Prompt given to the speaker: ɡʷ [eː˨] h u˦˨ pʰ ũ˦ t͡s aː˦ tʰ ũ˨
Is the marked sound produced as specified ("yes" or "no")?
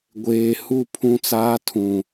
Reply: yes